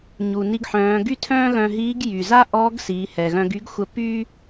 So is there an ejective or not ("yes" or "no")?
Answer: no